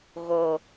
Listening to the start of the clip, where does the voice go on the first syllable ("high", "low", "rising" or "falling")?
low